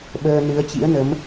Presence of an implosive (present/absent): present